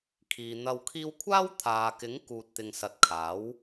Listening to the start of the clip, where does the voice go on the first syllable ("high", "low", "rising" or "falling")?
low